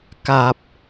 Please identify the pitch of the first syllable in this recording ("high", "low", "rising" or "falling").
low